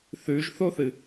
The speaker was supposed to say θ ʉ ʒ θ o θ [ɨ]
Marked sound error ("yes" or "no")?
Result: no